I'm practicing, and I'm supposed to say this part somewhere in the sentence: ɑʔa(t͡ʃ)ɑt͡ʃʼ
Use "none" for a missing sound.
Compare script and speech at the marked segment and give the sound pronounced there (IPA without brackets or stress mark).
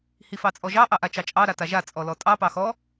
t͡ʃ